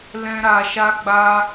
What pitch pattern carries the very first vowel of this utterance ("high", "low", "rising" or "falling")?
high